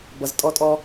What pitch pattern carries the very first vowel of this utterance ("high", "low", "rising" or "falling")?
low